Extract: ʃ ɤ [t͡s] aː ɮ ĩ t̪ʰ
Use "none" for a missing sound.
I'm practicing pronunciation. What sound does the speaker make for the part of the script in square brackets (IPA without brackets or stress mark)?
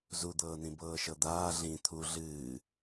d̪